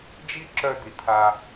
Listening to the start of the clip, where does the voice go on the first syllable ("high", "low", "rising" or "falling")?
high